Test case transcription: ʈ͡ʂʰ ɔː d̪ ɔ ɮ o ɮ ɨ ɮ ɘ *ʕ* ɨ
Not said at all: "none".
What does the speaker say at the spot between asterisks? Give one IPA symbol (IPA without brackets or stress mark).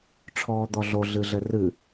r